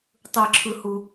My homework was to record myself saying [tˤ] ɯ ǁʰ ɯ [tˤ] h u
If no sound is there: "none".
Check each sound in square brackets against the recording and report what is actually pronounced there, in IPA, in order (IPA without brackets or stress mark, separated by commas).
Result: tˤ, none